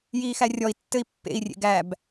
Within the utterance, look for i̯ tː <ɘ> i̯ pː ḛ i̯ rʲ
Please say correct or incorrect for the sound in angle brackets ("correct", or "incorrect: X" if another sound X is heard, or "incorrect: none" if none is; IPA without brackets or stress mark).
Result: correct